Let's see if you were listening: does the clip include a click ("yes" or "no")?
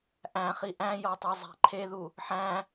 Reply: yes